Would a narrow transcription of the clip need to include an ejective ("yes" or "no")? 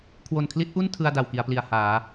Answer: no